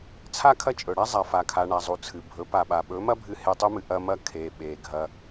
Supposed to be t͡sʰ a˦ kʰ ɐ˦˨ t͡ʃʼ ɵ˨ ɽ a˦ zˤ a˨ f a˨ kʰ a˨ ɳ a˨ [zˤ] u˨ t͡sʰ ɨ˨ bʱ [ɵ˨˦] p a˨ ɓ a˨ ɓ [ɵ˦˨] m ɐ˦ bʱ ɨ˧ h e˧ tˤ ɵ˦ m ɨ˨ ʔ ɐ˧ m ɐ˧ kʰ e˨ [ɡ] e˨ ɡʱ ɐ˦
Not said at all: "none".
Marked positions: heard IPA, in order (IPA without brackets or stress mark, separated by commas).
zˤ, ɵ˨˦, ɵ˨˦, ɓ